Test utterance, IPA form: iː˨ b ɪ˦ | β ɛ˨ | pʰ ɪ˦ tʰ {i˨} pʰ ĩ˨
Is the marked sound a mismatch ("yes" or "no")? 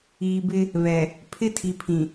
no